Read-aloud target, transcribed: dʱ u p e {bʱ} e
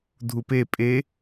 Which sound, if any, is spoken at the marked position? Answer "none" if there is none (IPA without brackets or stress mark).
pʼ